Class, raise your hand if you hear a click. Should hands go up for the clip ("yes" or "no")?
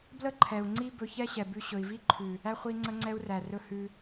yes